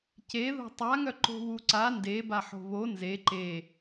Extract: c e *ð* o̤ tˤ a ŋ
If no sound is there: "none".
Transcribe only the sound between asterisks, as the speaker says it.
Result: ð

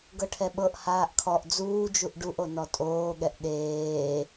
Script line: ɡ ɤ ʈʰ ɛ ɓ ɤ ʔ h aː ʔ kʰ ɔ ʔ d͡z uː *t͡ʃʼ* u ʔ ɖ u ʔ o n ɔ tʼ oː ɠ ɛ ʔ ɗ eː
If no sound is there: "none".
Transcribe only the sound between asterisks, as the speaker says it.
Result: d͡ʒ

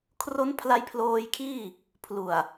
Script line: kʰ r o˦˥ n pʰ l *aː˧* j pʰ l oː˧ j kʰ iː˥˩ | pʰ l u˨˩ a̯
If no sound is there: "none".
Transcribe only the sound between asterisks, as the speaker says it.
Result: a˧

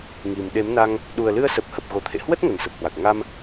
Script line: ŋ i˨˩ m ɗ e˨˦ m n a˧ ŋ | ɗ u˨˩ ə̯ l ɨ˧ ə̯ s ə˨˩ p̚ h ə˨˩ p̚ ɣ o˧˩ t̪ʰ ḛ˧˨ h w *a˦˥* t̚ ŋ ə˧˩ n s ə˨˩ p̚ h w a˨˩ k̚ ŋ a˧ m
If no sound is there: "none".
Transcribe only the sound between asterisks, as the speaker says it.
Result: ə˦˥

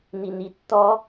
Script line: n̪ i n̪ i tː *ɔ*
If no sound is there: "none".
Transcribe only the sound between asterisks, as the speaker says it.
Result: ɔ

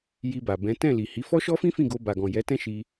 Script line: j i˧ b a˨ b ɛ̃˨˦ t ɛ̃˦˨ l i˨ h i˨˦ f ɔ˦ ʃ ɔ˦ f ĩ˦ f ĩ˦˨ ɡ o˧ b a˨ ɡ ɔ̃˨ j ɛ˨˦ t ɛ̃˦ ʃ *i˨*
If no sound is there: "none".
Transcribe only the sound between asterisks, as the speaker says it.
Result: i˧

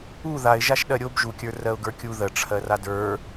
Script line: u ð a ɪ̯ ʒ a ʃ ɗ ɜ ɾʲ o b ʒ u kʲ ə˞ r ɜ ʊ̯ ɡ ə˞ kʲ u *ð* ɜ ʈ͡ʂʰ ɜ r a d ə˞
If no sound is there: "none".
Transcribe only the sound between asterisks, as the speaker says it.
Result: ð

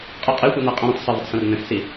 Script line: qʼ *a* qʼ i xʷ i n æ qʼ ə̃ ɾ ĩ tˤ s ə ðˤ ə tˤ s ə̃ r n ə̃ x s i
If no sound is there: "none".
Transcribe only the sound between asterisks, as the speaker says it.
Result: ə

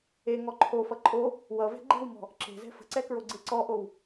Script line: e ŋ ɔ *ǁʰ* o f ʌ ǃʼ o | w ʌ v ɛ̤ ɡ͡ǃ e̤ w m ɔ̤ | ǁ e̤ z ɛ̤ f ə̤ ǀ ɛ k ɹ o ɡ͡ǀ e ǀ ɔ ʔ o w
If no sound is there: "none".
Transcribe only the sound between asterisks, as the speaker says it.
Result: ǃʰ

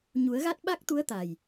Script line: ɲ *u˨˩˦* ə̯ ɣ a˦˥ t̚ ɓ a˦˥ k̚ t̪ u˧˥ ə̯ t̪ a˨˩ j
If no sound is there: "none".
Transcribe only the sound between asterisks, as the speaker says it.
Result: u˨˩˦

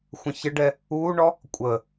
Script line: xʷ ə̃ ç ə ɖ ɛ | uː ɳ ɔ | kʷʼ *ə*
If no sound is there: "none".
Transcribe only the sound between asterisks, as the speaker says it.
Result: ə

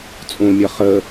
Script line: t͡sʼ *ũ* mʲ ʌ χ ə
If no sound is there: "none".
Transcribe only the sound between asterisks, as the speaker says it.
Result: ũ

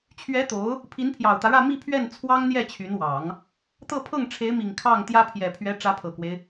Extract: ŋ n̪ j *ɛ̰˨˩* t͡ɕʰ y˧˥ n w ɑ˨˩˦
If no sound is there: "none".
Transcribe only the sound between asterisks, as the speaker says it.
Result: ɛ˥˩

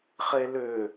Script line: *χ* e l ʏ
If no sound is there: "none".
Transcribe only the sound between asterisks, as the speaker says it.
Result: χ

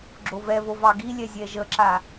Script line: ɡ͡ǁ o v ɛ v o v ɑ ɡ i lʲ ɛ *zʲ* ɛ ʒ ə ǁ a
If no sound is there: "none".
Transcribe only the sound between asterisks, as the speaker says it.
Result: zʲ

